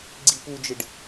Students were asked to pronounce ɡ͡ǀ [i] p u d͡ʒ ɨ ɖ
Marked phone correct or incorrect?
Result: correct